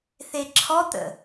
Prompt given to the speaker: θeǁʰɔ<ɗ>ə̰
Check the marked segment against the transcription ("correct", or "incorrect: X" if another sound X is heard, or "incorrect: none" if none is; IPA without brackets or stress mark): incorrect: t̪